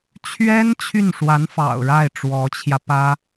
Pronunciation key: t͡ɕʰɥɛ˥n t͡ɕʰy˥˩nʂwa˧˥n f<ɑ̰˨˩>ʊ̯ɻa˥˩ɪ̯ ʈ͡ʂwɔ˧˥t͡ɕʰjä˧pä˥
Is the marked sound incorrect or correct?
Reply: correct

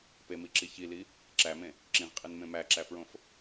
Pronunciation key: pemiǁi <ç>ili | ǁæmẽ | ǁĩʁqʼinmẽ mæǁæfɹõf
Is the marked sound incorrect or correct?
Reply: correct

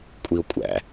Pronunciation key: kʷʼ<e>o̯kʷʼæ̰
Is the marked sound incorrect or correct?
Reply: incorrect: i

